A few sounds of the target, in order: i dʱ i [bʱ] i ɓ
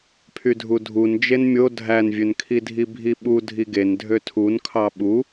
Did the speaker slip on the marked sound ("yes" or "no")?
no